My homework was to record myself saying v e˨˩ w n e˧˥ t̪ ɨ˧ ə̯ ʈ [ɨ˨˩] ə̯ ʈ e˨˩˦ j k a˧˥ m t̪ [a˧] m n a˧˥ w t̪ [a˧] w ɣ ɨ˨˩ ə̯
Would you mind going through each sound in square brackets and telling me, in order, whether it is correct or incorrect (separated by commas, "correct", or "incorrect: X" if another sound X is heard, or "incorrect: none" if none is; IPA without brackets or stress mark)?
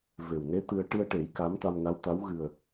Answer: incorrect: ɨ˧, correct, incorrect: a˧˥